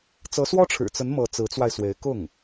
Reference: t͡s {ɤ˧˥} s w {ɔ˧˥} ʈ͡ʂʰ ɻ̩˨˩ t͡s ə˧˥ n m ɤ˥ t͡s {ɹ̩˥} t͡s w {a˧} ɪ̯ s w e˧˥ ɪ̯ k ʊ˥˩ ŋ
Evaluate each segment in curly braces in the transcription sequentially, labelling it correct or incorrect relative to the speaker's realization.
correct, incorrect: ɔ˥, incorrect: ɹ̩˧˥, correct

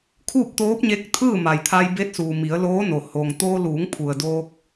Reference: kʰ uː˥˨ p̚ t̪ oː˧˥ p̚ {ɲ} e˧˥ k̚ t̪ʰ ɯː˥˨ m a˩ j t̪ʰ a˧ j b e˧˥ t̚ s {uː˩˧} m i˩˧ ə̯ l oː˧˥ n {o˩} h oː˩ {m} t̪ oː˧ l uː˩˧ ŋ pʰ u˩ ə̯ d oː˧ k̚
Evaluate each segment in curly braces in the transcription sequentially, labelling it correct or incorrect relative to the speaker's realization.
correct, incorrect: uː˩, correct, incorrect: ŋ

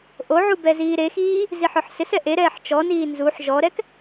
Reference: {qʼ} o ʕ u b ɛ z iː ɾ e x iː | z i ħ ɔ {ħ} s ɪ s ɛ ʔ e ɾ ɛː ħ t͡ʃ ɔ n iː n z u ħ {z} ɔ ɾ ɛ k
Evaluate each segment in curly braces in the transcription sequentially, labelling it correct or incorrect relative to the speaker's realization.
incorrect: ʔ, correct, incorrect: ʒ

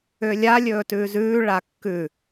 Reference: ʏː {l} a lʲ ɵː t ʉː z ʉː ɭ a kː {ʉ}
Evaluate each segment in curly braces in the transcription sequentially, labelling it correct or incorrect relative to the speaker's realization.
incorrect: lʲ, correct

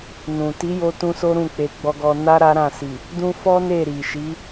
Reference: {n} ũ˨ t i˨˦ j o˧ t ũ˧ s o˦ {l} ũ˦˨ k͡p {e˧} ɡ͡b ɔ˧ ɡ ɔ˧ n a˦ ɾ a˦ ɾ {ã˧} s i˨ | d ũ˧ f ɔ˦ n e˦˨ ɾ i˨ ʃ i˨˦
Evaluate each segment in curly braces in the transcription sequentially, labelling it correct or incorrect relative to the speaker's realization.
correct, incorrect: ɾ, correct, incorrect: ã˦˨

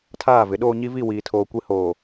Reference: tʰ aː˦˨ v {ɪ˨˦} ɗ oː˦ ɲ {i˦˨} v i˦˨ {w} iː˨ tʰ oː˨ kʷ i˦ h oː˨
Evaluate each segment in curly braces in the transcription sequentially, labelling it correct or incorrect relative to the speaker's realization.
correct, incorrect: i˦, correct

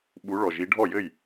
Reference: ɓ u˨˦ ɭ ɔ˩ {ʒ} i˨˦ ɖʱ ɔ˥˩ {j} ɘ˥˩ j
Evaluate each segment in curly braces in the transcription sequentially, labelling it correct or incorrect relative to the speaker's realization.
correct, correct

